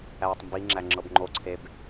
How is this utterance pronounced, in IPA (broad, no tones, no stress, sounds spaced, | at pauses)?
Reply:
æː tˤ m b i ŋ͡ǁ æ ŋ͡ǁ ɤ b ŋ͡ǃ o ǀʰ e b